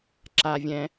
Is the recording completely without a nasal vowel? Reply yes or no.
no